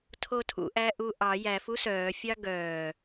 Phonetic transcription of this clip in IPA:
tʰ o tʰ ṵ ʔ æ ʔ u ʔ ɑ j æ f u s œː fʲ ɑ ɡ œː

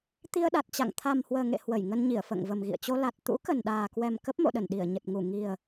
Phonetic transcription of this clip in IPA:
t̪ i˧ ə̯ ɗ a˨˩ t̚ t͡ɕ a̰˧˨ ŋ t̪ʰ a˨˩ m h w əː˨˩ ŋ ḛ˧˨ h w ə˧˩ j ŋ ə˧ n ɲ i˧˩ ə̯ f ə̰ː˧˨ ŋ v ə˨˩ m ɣ ḭ˧˨ ə̯ t͡ɕ o˧ l a˨˩ t̚ t̪ ṵ˧˥ k ə˨˩ n ɗ aː˨˩ k w ɛ˨˩ m k ə˦˥ p̚ m o̰˧˨ ɗ ə˧˩ n ɗ i˧˩ ə̯ ɲ ə˨˩ t̚ ŋ u˧˩ ŋ i˨˩ ə̯

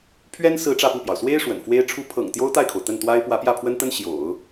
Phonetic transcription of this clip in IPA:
pʰ ɥ ɛ˥ n s ɹ̩˥ ʈ͡ʂ ä˥˧ p u˥˩ p j ɑ˩ ʊ̯ s w e˥ ɪ̯ ʂ w ə̰˨˩ n f w e˥ ɪ̯ ʈ͡ʂʰ u˥ pʰ ɤ̰˨˩ ŋ t̪ j o˥ ʊ̯ t̪ a˥˩ ɪ̯ kʰ o˩ ʊ̯ t̪ ə˥˩ n t̪ w a˥ ɪ̯ p w ä˧˥ p j ä˥˩ pʰ w ə˥ n t̪ ə˥ n ɕ j o̰˨˩˦ ʊ̯

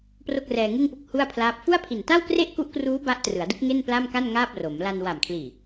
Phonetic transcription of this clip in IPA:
p r o˥˩ k̚ r ɛː˧ ŋ ɯ˥˩ ŋ p u˦˥ k̚ h u˥˩ a̯ pʰ l aː˦˥ p̚ f u˥˩ a̯ pʰ i˨˩ n t a˥˩ w k r e˥˩ ʔ k u˦˥ ʔ k r uː˦˥ b a˦˥ ʔ t r ɯ˩˦ a̯ d ɯ˦˥ k̚ ŋ e˥˩ n p l a˥˩ m k a˥˩ n ŋ aː˥˩ p̚ r o˩˦ m l a˧ n w a˨˩ m kʰ l iː˨˩

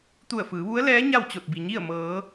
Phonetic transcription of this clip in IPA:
t̪ u˧˩ ə̯ f ɯː˩˧ ʋ u˧˥ ə̯ l ɛː˧˥ ɲ a˥˨ w t͡ɕ o˧˩ t̚ b i˩ ɲ i˥˨ ə̯ m ɤː˩˧

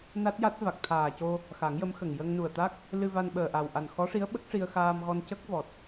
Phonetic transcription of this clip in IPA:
n a˦˥ t̚ j a˦˥ t̚ v a˨˩ k̚ t̪ʰ aː˨˩ c o˧ | x a˨˩˦ ŋ j ə˧˥ m x ə˨˩ ŋ j ə˧ ŋ n u˨˩ ə̯ t̪ a˦˥ k̚ | l ɨ˧ v a˧ n ɓ əː˨˩ ʔ a˨˩ w ʔ a˨˩ n x ɔ˧˥ ʂ i˧˥ ə̯ ɓ ə˦˥ k̚ ʂ i˧ ə̯ x aː˧ m ɣ ɔ˧ n c ə˦˥ k̚ v ɔ˨˩ t̚

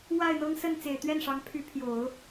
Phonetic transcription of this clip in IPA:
w a˥˩ ɪ̯ n̪ ɤ˥ ŋ s ə˥˩ n t͡s e˨˩ ɪ̯ t̪ ɥ ɛ˥˩ n ʂ ɑ˧˥ ŋ pʰ y˧˥ pʰ j o˨˩˦ ʊ̯

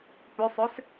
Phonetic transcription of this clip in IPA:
p ø sˤ ø s

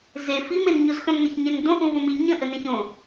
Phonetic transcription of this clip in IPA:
z e f i m e n ɲ o z x œ̃ m n ɐ ç ɲ ẽ n d õ ʔ ũ v õ m i ɲ ə̃ ʔ ə n ẽ ç õ

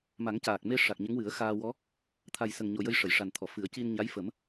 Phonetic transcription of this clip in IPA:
m a˨˩˦ ŋ c aː˨˩ k̚ m e˧ ʂ a˨˩ k̚ ɲ ə˧˥ ŋ w ɨ˨˩˦ ə̯ x aː˧ w ɔ˧˥ | t̪ʰ a˨˩ j s ə˨˩ ŋ ɲ o˨˩ j ə˧ j ʂ ə˨˩˨ j ʂ a˨˩ n t̪ʰ ɔ˨˩˨ f ɨ˨˩˦ ə̯ c i˧ n ɲ a˧˥ j f ə˨˩˦ m

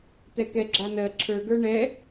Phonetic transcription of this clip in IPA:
t ɛ k ɛ ɡ͡ǁ a n ɜ ǁʰ ə˞ ɡ ə˞ ɳ ɛ

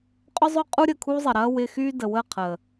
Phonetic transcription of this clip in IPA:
qʼ ʊ˦ zˤ ʊ˦ qʼ u˦ ɾʲ ə˨ kʰ u˦ zˤ ɪ˨ ɾ ɐ˦ w ɪ˦ x y˦ d ə˨ w ə˦˨ qʰ ə˨

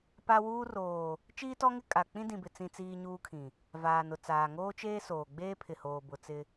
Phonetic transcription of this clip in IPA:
p a˦ w uː˦ r oː˨ | t͡ʃ iː˦ t ɔ˦ ŋ ɪ˦ kʼ a˨ k͡p ĩ˦ d ĩ˨ b ɪ˨ t͡s ĩ˦ t͡s iː˦ ɲ uː˦ kʰ ĩ˨ | v aː˨ n ʊ˨ t͡s aː˨ ŋ oː˦ t͡ʃ eː˦ s oː˨ ɡ͡b eː˦ pʰ ɪ˨ h oː˨ b ʊ˨ t͡s ɪ˦

